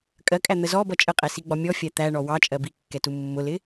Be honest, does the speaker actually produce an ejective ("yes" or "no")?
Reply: yes